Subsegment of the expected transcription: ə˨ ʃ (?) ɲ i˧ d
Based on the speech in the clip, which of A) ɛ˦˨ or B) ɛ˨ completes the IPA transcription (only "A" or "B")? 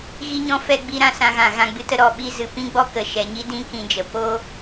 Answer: B